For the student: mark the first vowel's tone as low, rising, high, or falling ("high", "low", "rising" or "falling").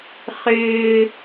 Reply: high